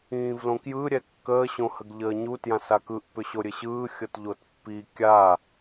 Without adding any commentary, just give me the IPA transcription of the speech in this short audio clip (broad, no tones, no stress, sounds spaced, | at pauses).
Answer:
ĩː v l õ k j ɯ ɾʲ ɛ kː əː ɕ õ h ə ɡ ʎ əː ɲ u t j ã s a k ɯ ʔ p ʏ ɕ o ɾʲ ɘ ɕ ɯː xʲ ɤ t ʎ o t pː i kʲ a